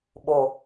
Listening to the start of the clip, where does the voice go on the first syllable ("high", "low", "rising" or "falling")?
low